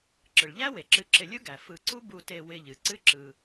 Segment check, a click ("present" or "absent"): present